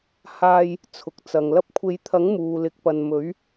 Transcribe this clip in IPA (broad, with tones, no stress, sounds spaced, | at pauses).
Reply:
h aː˧ j | t͡sʰ ʊ˨ k̚ t͡s ɐ˨ ŋ l ɐ˧ p̚ kʷʰ e˨˧ j t̪ʰ ɐ˨˥ ŋ m uː˨ l ɪ˨˥ k̚ p ɐ˨ n m ɵ˨˥ ɥ